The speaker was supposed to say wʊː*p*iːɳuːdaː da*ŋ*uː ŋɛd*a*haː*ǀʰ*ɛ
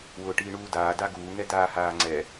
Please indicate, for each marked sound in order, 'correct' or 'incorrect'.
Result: incorrect: ʈ, incorrect: ɡ, incorrect: aː, incorrect: ŋ͡ǀ

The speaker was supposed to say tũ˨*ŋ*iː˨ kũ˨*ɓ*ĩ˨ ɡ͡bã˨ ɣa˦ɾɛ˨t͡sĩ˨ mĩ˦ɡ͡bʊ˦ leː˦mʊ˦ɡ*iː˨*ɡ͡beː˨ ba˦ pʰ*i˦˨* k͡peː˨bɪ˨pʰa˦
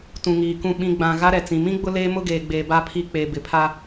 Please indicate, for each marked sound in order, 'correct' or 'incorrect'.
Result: correct, correct, incorrect: eː˨, correct

